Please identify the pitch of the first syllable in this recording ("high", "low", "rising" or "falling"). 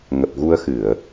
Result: low